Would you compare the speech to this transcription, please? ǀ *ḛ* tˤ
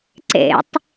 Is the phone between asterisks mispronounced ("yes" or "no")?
no